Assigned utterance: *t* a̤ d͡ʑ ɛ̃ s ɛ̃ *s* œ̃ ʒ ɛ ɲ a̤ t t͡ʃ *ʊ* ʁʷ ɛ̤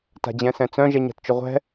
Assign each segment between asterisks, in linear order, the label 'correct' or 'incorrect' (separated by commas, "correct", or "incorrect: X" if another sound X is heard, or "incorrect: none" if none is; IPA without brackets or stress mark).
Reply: correct, incorrect: t͡s, correct